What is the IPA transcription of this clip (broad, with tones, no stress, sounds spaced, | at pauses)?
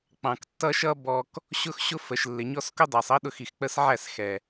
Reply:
k͡p ɑ̃˨ k tː ʌ˦ ʃ ʌ˦ b ɔ˨ k | ɕ ʊ˦ x ɕ ʊ˦ f ə˨ ʃ lː ɪ˨ ɲ ɔ˦ s k ʊ˦ dˤ æ˨ sˤ ʌ˦ ɗ ʊ˦˨ x i˨ x k͡p ə˦ s ʕ æ˦˨ s x ɛ˨